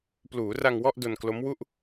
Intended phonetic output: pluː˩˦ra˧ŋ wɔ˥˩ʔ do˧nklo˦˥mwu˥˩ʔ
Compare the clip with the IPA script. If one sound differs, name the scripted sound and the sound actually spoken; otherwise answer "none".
none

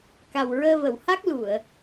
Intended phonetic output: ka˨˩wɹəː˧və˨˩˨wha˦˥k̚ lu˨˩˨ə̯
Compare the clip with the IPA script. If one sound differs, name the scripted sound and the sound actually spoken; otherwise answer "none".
none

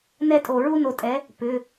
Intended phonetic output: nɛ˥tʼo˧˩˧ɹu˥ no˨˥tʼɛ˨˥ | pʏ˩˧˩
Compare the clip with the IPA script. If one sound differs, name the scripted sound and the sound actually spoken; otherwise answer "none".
none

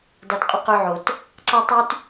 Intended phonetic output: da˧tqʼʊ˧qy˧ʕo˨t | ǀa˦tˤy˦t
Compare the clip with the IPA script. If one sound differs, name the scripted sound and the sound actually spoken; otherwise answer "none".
ʊ˧ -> ʊ˦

